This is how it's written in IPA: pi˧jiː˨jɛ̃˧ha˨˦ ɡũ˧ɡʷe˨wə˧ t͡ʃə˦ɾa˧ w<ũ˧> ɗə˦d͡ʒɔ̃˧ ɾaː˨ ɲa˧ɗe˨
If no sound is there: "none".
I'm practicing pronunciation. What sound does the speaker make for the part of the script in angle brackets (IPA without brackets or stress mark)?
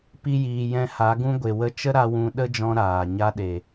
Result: ũ˧